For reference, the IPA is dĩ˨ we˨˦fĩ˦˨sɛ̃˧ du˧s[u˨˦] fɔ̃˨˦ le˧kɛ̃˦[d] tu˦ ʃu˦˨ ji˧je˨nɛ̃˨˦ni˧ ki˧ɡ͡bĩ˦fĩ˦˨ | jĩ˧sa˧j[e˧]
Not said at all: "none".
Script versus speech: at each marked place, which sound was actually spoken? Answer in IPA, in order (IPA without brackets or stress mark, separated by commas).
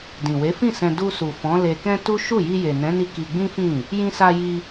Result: u˨, none, i˧